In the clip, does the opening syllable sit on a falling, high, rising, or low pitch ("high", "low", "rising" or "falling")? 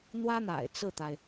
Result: high